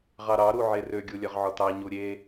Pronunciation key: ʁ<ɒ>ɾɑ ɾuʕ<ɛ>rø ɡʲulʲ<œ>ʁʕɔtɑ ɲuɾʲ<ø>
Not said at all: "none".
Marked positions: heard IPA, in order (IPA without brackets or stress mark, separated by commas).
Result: ɑ, e, œ, e